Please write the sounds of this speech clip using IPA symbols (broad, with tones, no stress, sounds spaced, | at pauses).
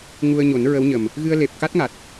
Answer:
ŋ u˧ ə̯ ɲ o˨˩˦ n ɹ ə˧˥ w ɲ ə˨˩ m | ɣ ɨ˧ ə̯ l e˨˩ p̚ k a˦˥ t̚ ŋ a˨˩ t̚